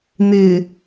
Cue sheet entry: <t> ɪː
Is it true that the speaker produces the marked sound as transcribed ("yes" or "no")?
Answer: no